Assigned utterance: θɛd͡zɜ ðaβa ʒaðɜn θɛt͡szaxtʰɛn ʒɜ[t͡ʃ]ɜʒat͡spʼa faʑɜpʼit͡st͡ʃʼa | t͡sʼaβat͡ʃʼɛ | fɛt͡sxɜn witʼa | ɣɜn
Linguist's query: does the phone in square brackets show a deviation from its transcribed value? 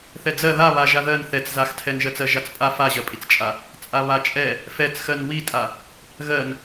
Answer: yes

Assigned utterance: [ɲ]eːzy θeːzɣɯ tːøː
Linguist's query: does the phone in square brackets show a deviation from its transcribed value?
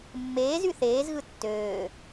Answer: yes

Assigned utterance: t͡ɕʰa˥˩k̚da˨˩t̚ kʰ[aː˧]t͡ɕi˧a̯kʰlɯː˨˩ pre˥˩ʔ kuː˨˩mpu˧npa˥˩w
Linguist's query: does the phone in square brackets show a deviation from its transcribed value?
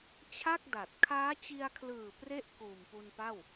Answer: yes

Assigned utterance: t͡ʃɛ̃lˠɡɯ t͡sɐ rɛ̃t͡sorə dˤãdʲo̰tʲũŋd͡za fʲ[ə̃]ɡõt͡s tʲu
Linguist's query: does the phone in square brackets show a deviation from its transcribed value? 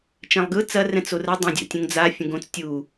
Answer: no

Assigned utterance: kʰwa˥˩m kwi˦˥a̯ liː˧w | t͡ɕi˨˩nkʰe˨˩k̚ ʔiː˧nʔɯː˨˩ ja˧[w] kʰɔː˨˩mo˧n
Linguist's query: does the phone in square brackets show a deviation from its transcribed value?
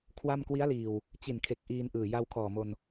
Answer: no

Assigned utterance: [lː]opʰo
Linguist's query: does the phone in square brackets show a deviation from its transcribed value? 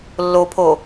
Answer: no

